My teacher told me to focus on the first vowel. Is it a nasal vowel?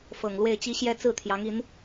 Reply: no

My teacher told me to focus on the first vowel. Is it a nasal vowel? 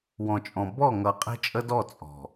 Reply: yes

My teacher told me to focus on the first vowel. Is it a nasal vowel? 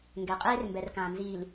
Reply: no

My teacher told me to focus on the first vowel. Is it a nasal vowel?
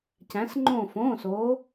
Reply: yes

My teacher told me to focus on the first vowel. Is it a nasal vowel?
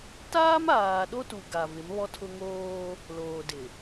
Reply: no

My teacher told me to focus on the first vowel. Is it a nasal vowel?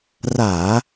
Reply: no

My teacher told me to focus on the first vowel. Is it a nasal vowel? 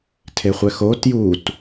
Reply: no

